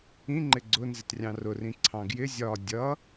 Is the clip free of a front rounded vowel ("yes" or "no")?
yes